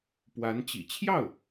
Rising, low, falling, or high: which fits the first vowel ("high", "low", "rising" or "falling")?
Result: rising